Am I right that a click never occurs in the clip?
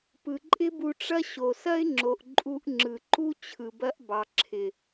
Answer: no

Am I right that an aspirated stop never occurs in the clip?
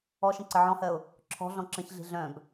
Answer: no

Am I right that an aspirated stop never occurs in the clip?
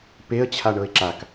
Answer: no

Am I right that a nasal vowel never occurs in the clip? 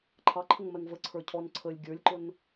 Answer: yes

